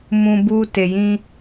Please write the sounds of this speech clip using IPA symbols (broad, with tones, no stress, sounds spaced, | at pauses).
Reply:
m ũ˦ b u˦ t e˧ j ĩ˦